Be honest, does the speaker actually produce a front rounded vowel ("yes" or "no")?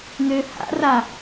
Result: yes